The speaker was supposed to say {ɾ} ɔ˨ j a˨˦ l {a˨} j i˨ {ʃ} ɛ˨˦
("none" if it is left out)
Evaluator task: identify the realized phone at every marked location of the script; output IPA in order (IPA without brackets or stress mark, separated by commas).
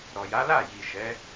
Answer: ɾ, a˦˨, ʃ